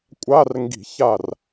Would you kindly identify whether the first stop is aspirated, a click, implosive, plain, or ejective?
ejective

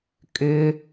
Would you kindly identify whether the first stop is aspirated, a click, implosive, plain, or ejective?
ejective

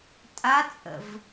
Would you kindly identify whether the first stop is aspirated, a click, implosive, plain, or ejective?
ejective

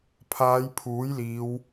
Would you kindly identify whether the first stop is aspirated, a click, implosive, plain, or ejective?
aspirated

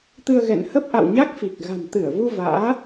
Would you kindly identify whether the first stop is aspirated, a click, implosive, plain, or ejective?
plain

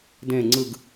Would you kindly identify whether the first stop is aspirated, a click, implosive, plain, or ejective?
plain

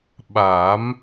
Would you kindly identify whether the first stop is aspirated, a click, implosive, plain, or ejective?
implosive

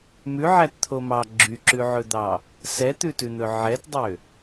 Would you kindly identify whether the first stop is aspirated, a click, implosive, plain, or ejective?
plain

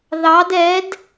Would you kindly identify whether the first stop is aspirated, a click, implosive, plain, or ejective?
plain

